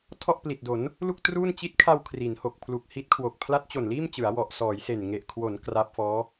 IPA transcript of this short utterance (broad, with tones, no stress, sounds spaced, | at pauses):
tʰ ɔ˥˩ ʔ p l i˨˩ t̚ d o˩˦ n | l u˥˩ k̚ t r uː˥˩ n t͡ɕ i˦˥ t̚ kʰ a˧ w kʰ r i˩˦ n h o˨˩ k̚ pʰ l u˨˩ k̚ h i˦˥ t̚ kʰ w o˨˩ k̚ pʰ l a˦˥ t̚ t͡ɕ o˨˩ n l iː˥˩ m t͡ɕ ɯ˩˦ a̯ w ɔ˨˩ ʔ s ɔː˩˦ j s e˨˩ n ŋ e˨˩ ʔ kʰ w o˩˦ n k r a˦˥ p̚ f ɔː˦˥